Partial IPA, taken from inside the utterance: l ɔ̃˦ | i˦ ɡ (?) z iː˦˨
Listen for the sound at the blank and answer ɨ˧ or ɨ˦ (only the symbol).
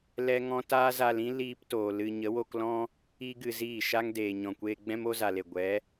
ɨ˧